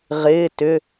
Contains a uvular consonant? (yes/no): yes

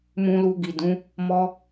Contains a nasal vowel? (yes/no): yes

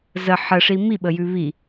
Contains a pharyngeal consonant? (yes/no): yes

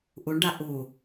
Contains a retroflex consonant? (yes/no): yes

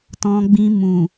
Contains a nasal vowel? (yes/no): yes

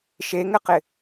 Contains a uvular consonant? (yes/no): yes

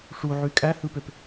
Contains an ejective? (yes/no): yes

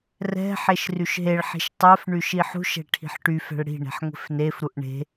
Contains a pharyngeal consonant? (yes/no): yes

